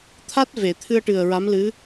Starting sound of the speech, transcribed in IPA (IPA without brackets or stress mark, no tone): t̪ʰ